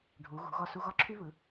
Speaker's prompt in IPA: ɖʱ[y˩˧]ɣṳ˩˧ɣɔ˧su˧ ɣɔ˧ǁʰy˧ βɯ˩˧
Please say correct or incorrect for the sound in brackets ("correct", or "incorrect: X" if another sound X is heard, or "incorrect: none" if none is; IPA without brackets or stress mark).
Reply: incorrect: u˩˧